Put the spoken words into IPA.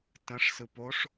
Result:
tə̃ʂ sɯpoʂ

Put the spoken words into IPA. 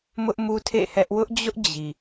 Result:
mʊ˦ʔmu˦ tʰḛ˦˨hɛ˦ʔ wʊ˦ʔd͡ʑʊ˦ʔ d͡ʑi˨

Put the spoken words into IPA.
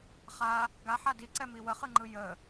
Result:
χa | ɡaħa diǀɛmi wəχɯŋ͡ǃɯ jə

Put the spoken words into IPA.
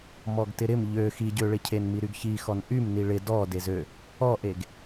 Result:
mɔɡtɪɾɪm ʎø xiɟøɭɪcʰen miɾyɡçixɔn ʔym niɭɪ dɔ dezø | ɔʔeɡ

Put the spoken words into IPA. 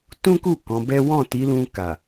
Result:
tũ˦ku˦˨ kɔ̃˨˦bɛ˦ wɔ̃˦˨ti˨˦lũ˧ ka˨

